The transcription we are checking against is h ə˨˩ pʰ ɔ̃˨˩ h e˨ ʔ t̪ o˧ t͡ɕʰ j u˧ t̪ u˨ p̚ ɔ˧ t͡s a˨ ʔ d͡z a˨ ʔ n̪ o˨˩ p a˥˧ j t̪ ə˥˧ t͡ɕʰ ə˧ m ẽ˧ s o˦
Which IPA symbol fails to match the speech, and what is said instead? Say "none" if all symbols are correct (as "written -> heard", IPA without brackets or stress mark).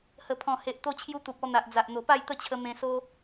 t͡s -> n̪